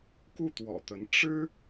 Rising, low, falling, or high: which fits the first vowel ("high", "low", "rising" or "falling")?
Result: falling